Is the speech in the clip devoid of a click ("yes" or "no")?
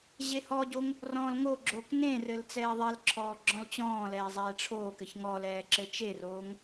no